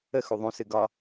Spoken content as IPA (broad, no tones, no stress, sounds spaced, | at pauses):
ə x u ðˤ ũ s ɨ ɡ ɒ